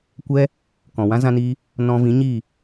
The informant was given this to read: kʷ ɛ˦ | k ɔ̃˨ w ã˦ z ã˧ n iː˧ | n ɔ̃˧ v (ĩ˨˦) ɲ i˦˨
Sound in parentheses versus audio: correct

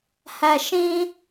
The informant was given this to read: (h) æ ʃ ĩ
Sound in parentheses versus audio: correct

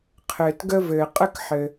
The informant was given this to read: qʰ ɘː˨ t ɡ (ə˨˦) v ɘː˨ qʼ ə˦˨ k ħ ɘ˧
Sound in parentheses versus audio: incorrect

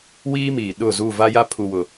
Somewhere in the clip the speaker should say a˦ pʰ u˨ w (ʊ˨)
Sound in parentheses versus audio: correct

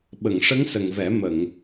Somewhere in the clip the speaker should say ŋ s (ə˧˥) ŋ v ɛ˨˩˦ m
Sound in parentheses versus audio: incorrect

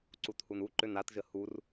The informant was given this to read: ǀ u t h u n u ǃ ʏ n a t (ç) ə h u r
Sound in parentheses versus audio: incorrect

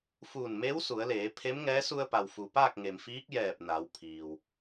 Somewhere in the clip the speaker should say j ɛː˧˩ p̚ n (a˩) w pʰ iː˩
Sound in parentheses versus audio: incorrect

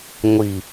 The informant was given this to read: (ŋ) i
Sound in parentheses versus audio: incorrect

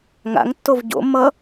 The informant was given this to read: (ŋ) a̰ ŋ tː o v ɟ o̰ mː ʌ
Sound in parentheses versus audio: correct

